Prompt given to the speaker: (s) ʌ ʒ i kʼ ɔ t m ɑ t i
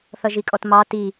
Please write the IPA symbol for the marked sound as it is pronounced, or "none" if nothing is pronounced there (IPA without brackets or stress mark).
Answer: θ